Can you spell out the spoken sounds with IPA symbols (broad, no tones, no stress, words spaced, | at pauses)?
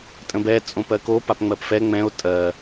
tʼə̃bɛ t͡sʼõpɜko papŋ͡mɜpfɛ ŋ͡mɛ̃o̯ tʼɜ